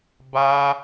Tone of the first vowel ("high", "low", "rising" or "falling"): high